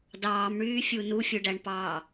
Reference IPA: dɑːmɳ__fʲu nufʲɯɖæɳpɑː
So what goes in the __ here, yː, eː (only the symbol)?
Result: yː